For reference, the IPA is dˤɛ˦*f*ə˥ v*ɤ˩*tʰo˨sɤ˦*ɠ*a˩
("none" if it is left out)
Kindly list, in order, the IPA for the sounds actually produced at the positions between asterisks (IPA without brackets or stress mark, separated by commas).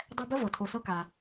b, ɤ˩, k